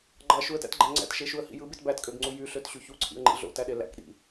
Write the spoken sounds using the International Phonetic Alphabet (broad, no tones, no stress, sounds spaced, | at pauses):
ɡ͡ǃ ɑ ʃ u ə̯ t æ̰ t ɡ͡ǃ æ ŋ͡ǀ æ̰ t ʃ e ʃ u ə̯ h ḭ j ɯ b i t b æ t kʼ ø ɡ ŋ͡ǀ u j y ɬ ø t ɕ y ç u ǀʰ ḭ ə̯ ŋ͡ǃ ḭ ɮ o̰ t æ ɗ e l æ̰ k ɗ ḭ